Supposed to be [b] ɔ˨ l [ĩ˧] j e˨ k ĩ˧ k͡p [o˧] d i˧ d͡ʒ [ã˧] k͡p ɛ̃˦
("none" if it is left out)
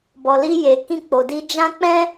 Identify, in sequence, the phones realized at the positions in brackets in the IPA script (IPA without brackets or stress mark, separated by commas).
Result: b, i˧, o˨, ã˦